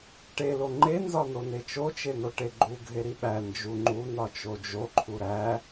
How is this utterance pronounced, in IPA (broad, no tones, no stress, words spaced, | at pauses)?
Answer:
ʈelo ŋ͡ǃe nzɒnonet͡ʃo t͡ʃen̪oʈeɡ͡ǃu ɡʱeɾiɓæ nd͡ʒuŋ͡ǃu nɒt͡ʃod͡ʒoǃʰu ɾæ